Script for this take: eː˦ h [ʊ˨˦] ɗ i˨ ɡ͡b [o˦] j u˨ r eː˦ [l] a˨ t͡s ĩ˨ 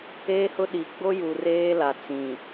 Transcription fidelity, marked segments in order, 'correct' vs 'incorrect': incorrect, correct, correct

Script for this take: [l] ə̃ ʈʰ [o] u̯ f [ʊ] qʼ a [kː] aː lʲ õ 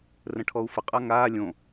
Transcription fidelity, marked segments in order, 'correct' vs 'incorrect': incorrect, incorrect, incorrect, incorrect

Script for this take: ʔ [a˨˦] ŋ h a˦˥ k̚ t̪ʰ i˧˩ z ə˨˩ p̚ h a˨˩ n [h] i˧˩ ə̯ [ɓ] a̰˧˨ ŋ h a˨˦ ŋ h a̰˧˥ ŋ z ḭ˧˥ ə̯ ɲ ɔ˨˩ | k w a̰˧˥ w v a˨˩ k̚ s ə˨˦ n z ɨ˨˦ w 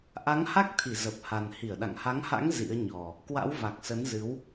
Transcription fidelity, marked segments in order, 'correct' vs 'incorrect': correct, correct, incorrect

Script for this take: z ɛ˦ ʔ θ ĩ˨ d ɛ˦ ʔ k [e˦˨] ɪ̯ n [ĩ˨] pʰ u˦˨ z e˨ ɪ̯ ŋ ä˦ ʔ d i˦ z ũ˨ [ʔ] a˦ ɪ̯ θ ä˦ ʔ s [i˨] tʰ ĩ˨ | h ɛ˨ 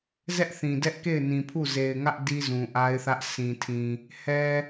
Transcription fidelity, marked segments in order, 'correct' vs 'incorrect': correct, correct, correct, incorrect

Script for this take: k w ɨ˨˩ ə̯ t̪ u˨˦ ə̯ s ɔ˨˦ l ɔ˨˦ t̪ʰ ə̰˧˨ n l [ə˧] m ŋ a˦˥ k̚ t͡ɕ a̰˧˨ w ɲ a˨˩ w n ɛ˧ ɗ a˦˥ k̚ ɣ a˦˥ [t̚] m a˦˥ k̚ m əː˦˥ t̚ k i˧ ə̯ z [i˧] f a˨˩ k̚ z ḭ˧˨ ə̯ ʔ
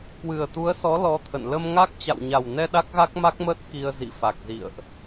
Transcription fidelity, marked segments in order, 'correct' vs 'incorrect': correct, incorrect, incorrect

